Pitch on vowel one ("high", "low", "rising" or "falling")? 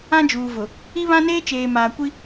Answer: high